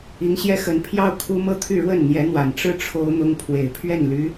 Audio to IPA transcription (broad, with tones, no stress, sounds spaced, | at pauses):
i˧˥ ŋ ɕ j ɛ˥ x ə˧˥ n pʰ j ɑ˥˩ ʊ̯ kʰ u˥ m ɤ˥˧ t̪ʰ y˥˧ ɻ w ə˥˩ n n̪ j ɛ˧˥ n̪ w a˨˩ n ʈ͡ʂ ɻ̩˥˩ ʈ͡ʂʰ o˥ ʊ̯ n̪ ʊ˥ ŋ pʰ w e˨˩ ɪ̯ pʰ ɥ ɛ˥˩ n l y˧˥